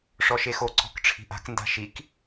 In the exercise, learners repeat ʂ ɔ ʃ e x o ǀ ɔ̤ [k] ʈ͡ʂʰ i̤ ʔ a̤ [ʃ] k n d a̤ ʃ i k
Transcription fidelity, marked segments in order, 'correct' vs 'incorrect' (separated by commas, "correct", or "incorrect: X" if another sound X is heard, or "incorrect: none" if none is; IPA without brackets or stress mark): correct, incorrect: none